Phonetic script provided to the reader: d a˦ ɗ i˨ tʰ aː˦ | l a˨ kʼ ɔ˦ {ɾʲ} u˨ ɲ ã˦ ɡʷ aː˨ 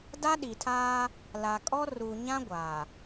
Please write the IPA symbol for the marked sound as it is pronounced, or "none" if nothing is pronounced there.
r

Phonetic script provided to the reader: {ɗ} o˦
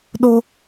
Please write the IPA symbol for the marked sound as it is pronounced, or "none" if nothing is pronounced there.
ɗ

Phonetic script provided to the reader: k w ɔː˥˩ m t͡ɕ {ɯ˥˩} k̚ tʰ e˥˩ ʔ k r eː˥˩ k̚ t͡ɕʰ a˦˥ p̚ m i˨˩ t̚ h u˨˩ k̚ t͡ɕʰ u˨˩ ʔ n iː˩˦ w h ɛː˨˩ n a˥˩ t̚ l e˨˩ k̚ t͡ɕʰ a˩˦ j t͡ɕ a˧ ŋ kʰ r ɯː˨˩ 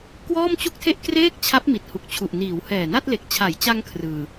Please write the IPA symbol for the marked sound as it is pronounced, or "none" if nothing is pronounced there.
u˥˩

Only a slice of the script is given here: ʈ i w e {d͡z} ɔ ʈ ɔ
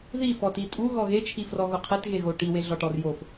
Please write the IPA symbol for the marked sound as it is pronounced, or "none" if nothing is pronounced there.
ɮ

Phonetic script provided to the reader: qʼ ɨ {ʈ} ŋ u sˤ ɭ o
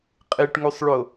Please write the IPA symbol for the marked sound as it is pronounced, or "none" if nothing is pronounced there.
ʈ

